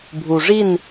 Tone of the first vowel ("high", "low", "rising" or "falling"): low